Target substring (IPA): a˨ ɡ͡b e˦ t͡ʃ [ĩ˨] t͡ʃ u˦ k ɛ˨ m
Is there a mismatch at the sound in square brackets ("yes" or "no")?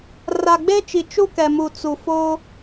yes